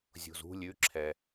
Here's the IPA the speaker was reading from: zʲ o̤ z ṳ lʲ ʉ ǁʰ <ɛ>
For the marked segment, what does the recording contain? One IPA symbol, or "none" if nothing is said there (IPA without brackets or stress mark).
ɛ